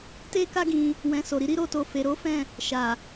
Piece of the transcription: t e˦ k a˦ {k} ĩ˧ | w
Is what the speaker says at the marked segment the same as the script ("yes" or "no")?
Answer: no